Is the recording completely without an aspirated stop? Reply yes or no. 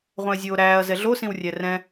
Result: yes